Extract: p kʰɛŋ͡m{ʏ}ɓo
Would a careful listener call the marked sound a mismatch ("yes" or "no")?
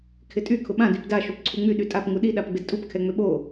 no